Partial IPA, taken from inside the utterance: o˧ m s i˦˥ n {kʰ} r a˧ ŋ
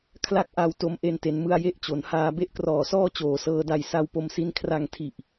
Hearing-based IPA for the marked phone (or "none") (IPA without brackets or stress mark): kʰ